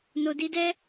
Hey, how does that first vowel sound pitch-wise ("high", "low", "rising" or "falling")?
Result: low